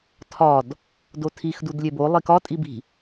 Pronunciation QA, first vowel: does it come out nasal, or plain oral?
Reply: oral